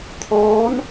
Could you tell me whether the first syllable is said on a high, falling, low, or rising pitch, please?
rising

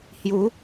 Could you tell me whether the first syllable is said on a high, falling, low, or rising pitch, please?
rising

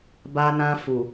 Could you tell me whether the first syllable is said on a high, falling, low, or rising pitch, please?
high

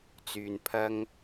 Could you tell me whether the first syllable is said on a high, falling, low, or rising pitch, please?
low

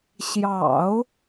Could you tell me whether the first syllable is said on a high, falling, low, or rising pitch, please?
low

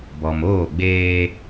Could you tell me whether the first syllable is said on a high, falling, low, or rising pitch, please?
low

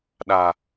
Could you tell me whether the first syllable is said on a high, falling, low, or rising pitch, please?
low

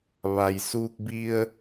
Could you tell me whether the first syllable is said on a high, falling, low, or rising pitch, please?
low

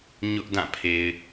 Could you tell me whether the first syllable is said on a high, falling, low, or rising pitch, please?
high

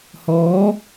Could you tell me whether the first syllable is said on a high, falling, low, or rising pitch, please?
rising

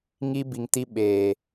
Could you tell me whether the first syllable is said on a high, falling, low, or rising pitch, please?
high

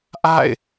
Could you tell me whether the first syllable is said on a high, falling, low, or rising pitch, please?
falling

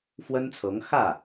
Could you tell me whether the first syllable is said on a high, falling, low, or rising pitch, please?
high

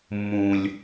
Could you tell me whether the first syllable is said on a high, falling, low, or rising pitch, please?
low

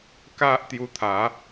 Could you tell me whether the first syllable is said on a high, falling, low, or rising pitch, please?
high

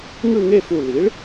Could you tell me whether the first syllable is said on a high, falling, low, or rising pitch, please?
falling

